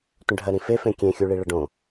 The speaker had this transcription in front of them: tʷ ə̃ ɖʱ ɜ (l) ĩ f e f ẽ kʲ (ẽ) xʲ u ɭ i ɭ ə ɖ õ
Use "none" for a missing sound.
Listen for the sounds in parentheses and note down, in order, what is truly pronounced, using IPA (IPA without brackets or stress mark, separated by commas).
ɾ, ẽ